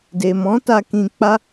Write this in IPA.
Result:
d e˨ m ɔ̃˨˦ t a˧ k ĩ˧ k͡p a˦

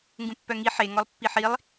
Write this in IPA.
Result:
ŋ ɡ ũ pː œ ŋ i ħ e ŋ ɔ lˠ pː i ħ i lˠ

